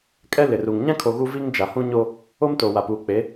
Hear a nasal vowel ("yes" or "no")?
yes